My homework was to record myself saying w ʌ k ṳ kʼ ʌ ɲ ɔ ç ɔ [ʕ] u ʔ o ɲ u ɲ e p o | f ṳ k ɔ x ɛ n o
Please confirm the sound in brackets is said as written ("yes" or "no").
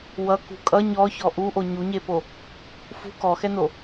no